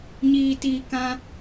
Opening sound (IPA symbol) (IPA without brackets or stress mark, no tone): ɲ